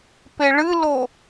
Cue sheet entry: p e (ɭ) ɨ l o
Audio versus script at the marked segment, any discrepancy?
no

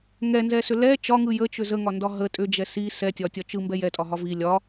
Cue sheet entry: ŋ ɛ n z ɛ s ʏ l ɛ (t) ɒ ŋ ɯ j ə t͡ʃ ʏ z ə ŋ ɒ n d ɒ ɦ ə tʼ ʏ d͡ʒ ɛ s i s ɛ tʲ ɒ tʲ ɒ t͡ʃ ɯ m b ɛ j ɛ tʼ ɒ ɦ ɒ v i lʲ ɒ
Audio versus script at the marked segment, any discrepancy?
yes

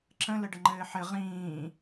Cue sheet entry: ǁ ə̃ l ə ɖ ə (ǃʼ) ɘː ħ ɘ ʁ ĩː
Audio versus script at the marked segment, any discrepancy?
yes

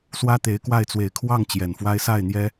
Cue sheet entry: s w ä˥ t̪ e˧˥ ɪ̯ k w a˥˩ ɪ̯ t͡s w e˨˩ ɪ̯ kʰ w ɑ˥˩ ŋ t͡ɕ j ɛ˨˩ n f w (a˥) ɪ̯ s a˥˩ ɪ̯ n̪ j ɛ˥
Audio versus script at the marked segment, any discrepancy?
no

